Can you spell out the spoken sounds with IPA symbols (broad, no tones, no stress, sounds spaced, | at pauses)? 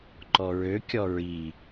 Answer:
ǃ ɔ ɹ ø kʲ ɔ ɹ i